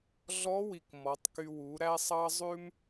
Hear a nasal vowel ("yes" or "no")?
no